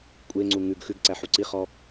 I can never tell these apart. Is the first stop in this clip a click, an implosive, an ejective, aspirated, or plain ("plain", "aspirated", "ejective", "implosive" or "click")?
ejective